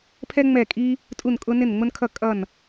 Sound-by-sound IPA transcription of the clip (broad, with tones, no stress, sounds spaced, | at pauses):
pʰ ɛ˥ ŋ͡m ɛ˥˨ kʼ i˥ | tʼ u˥˨ n kʼ ʊ˥ n ɪ˥˨ n ŋ͡m ʊ˥ n kʰ ʌ˥˨ kʼ ʌ˥˨ n